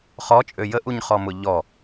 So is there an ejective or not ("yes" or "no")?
yes